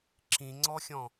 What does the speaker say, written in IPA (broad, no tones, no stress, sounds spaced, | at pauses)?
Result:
ǁ ĩ ŋ͡ǀ ɔ xʲ ɔ̃